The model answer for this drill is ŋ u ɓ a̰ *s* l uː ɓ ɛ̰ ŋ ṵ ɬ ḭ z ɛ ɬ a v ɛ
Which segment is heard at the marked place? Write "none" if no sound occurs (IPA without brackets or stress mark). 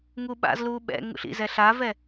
z